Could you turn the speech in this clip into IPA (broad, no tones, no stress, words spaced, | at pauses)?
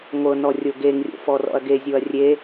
ŋʷɤnɔ rʲoɡeŋrʲo̰ fɔrɔ̰ɐ̯ɡezʲoɐ̯ rʲe